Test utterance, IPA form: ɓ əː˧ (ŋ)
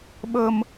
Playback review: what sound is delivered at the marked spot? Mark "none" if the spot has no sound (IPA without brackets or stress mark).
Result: m